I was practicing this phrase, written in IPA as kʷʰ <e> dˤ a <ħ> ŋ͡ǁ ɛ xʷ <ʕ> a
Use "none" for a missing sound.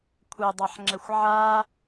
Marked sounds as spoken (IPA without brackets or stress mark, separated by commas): ɛ, ħ, ʕ